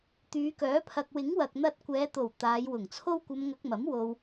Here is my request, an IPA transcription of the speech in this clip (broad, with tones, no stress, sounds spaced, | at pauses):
t̪ yː˨˧ k œː˨˥ pʰ ɐ˨ k̚ w ɪ˨˥ ŋ w ɐ˨ k̚ n̪ ɐ˧ t̚ kʷ ɛː˨˧ t̪ o˨˩ w t̪ aː˨˧ j w ʊ˨˩ ŋ t͡sʰ o˥ w kʷ ɐ˧ m ŋ ɐ˧ k̚ m ɐ˨˥ m w o˧ w